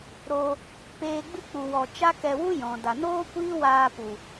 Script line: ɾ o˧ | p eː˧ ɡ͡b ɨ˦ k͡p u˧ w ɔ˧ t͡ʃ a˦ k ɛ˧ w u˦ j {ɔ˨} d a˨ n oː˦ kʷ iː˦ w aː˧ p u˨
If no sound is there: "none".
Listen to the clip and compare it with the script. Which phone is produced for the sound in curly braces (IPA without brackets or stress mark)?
ɔ̃˨